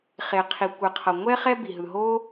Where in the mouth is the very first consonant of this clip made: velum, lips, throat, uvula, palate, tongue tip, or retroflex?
uvula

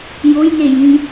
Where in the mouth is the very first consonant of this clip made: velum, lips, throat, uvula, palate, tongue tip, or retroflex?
palate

